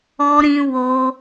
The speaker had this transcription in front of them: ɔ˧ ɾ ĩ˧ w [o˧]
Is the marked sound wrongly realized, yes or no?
no